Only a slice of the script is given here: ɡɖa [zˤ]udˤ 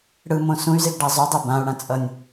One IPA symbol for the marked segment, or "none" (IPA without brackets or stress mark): zˤ